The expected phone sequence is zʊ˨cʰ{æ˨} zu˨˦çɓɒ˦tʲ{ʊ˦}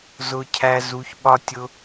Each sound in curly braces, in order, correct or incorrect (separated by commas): correct, correct